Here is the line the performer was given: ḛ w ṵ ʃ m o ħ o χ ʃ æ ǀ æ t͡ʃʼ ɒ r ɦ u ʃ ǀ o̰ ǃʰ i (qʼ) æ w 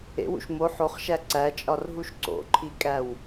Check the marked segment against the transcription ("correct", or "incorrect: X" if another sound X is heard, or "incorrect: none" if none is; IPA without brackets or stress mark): incorrect: kʼ